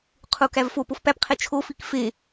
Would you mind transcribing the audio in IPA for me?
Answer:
qʰ u k æ v f o p o f p æ p qʰ e t͡ʃʰ o f i k f e

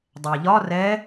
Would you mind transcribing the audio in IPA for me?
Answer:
dˤ ɛ ʎ ɒ r ɛ

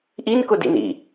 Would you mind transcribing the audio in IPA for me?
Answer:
ʔ i n k ʊ d ḭ n ḭ

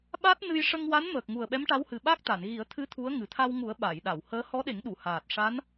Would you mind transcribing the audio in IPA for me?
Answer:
ɓ a˦˥ t̚ n ɨ˧ j ʂ ə˧ ŋ w a˧˥ n m əː˨˩ k̚ ŋ u˨˩ ə̯ ɓ ɛ˧˥ m ʈ a˧˥ w h ɨ˨˩ ɓ a˦˥ k̚ t̪ a˨˩˨ n ɣ i˨˩˦ ə̯ t̪ʰ ɨ˧˥ t̪ʰ u˧˥ ə̯ ŋ ɨ˨˩ t̪ʰ a˧ w ŋ u˨˩˦ ə̯ ɓ a˨˩˨ j ɗ a˨˩˨ w h əː˧˥ h ɔ˧˥ ɗ e˨˩˦ ŋ ɗ u˨˩˨ h aː˨˩ t̚ ʂ a˧˥ n

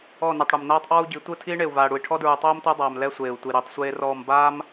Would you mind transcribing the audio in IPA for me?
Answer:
ɔ˦˨ n i˨ tˤ ɽ u˨ m n aː˦ tˤ ʔ ɔː˦ u̯ ɟ i˨˦ tʷ ɯ˦˨ tʰ iː˦ ɳ e˨ u̯ v aː˨ ɽ u˨ i̯ ʈʰ ɔ˦ d ɹ u˨ tˤ oː˦ m tʷ a˦ dˤ aː˨ m l ɛ˦ sʷ eː˨ u̯ tʷ i˨ ɾ e˨˦ tˤ sʷ eː˦ r ɔː˦˨ m b aː˦ m

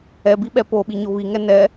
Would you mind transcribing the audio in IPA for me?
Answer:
ɛ b i ɓ ɛ p o ɓ i ɲ o β i ŋ ɛ n ɛ

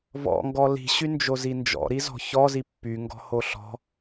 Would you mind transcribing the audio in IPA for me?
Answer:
v ɔ̰ ŋ ɡ ɔ l i̤ ɕ y n d͡ʒ o z i n d͡ʒ ɔ̰ ɾ i z ɔ̤ ç ɔ z i pː y ŋ ɡ ɔ̤ h o ɬ ɔ̤

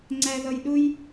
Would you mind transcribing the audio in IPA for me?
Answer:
ŋ͡ǀ æ˧ ð ʌ˧ j ɗ ʊ˥ j

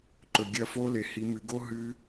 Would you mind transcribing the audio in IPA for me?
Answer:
ǃ ɵ˩ ɡʲ ɐ˦˨ f o˦˥ l e˩ h i˩˧ m ɨ˩˧ ɡ o˦˥ ɦ ɨ˦˥

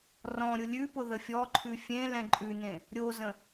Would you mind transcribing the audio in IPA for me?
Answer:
r ɔ̃ ɾʲ ʊ lʲ ʉ p ʊ ð ə fʲ ɔ ǃʰ ʉ fʲ ẽ l ɛ̃ ǃʼ ʉ n ẽ | ɾʲ o z ə̃

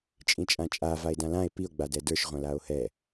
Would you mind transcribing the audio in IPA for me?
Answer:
t͡ʃʼ ĩ t͡ʃʼ ã t͡ʃʼ a v a e̯ d ã l ã e̯ p i o̯ ɡ͡b a d ɛ d ə˞ ʃ ʁʷ ã l a o̯ h ɛ

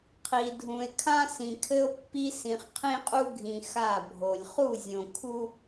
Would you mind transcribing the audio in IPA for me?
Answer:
qʰ i˨ dʱ ũ˨ e̯ kʰ ã˦ s ĩ˨ kʰ ɘ˦ o̯ pː i˦ s ĩ˨ χ qʰ ĩ˦ qʼ u˦ ɡʱ ĩ˨ x a˦˨ bʱ o˨ lʲ χ u˦˨ zʲ õ˨ kʰ u˦

